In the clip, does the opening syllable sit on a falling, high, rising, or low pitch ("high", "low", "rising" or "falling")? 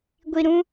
low